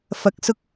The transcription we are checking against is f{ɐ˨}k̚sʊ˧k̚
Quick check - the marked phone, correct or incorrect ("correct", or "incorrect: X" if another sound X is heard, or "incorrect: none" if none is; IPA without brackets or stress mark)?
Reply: incorrect: ɐ˨˥